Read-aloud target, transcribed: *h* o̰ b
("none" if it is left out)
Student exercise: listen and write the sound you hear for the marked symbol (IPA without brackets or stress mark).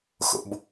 x